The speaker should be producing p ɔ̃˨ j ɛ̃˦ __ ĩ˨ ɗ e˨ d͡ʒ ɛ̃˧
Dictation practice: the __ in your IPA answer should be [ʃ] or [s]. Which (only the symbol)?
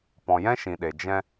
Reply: ʃ